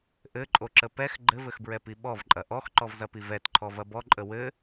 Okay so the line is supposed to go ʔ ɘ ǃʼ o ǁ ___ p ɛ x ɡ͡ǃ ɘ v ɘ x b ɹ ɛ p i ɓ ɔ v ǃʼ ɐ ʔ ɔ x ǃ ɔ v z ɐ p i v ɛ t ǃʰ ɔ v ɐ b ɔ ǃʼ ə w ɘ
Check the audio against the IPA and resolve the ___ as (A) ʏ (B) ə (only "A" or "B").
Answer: B